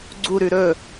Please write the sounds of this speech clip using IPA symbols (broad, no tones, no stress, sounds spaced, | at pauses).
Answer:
ɡ͡ǀ u ɾ ʉ ɾ ɵ